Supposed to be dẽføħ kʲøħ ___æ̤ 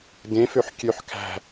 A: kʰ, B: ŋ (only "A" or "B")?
A